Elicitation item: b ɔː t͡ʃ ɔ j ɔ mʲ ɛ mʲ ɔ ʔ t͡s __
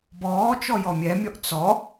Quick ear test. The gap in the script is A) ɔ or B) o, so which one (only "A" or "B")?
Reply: A